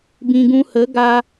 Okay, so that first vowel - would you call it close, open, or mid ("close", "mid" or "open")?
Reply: close